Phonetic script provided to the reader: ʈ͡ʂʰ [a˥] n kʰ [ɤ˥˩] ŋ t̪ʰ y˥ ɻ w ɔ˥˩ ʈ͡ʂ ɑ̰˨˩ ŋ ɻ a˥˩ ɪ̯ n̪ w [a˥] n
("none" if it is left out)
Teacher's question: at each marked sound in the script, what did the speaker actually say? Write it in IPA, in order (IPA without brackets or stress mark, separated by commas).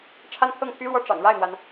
a˥˧, ɤ˥˩, a˩